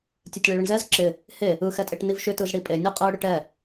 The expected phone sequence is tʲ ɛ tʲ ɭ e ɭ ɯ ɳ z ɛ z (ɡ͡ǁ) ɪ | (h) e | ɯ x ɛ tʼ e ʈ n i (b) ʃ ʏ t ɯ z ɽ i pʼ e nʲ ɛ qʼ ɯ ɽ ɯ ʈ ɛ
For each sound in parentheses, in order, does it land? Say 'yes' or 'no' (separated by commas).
no, yes, no